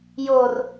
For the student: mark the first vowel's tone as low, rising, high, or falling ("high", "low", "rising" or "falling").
low